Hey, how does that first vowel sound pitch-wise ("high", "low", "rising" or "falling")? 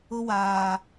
high